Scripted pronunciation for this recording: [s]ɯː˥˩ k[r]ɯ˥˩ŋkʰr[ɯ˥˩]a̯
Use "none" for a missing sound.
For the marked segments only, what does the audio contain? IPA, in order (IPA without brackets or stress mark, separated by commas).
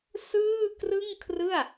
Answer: s, r, ɯ˥˩